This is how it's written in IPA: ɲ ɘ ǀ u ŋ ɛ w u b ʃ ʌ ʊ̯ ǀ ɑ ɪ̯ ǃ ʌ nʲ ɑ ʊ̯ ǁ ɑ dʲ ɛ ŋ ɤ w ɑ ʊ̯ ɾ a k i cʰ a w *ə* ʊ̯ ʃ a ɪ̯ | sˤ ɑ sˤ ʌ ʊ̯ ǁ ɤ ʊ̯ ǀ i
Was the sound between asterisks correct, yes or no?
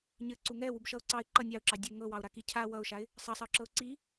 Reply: no